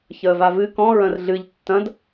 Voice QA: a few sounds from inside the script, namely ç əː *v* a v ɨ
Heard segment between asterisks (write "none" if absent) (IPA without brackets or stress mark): v